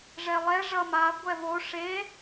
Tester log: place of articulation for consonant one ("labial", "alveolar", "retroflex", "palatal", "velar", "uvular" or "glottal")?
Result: retroflex